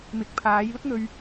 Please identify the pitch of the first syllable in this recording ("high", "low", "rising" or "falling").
rising